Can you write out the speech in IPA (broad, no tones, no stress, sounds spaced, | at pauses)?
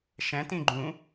ʃ ɛ̃ t ĩ ɡ͡ǃ ũ